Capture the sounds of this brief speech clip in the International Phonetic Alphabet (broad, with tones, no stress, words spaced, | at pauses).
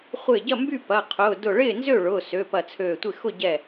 χʷɪː˥˩ ɟɐ˥˩mby˥˩ pɐ˩˧˩qʰʊː˩˧˩ dʊ˧˩ɭɪː˥˩nzø˥˩ɭʊː˩˧˩ sø˩˧˩pɐ˧˩t͡sʰøː˧˩tʷɪ˥˩ xʊ˥˩ ɟɛ˧˩